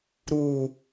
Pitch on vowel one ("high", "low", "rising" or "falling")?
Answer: low